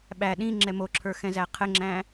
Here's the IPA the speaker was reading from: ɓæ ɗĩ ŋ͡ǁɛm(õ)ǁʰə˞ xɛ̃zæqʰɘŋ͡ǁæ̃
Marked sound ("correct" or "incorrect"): incorrect